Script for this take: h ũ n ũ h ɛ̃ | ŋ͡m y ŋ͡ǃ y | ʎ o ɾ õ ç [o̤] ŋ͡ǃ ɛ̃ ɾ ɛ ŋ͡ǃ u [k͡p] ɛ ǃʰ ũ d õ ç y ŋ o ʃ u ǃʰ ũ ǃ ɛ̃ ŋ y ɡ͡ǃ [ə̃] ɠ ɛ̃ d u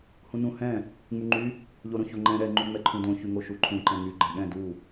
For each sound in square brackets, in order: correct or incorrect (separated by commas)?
incorrect, incorrect, incorrect